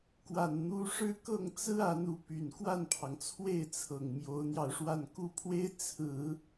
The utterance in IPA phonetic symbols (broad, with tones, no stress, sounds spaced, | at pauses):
k w a˨˩ n n̪ u˧˥ ʂ ɻ̩˥˧ k ɤ˥˩ ŋ t͡s ɹ̩˥ a˧˥ n u˧˥ p y˨˩ n k w a˥˩ n pʰ ɑ˩ ŋ t͡sʰ w e˥˩ ɪ̯ t͡sʰ ɤ˨˩ ŋ m j o˧˥ ʊ̯ n̪ j ɑ˧ ʊ̯ ʂ w a˥˧ n k u˥˩ pʰ w e˥ ɪ̯ t͡sʰ ɹ̩˨˩˦